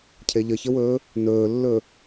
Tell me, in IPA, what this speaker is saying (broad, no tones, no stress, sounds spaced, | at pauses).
cʰ e ʎ ə ç ə w ɵː | n ɵː lː ɵ